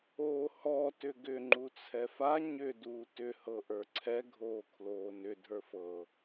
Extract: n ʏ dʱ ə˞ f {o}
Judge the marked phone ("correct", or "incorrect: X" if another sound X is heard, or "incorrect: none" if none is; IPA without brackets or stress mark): incorrect: ɤ